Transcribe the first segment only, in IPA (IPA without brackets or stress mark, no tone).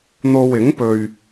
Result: n̪